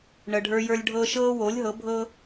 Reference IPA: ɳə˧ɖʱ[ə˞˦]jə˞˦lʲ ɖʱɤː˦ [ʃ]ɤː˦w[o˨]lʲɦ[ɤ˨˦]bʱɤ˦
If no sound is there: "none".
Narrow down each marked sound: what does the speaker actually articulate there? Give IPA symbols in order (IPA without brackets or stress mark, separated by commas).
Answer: ə˞˦, ʃ, o˨˦, ɤ˨˦